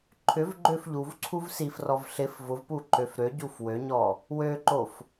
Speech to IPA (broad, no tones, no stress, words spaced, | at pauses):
ǃʰʏvɡ͡ǃøf ʎuv ǀʰuvsifrɔv ɬɪf vʊvpu ǃøfɾøɟuf wøɲɔ | wøǃof